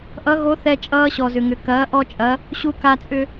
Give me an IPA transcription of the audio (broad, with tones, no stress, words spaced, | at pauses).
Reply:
ʔʌ˧˥ɣo˧˥θɛ˧ t͡ʃʼʌː˧ɕɔ˩zʏ˩ŋʏ˩ kɐː˩˧ ʔɔ˧t͡ʃʼɐ˩˧ | ɕu˧ka˧t͡sʼʏ˧